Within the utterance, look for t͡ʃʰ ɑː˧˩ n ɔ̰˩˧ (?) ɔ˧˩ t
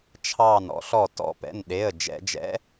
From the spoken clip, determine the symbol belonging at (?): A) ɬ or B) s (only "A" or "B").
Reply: A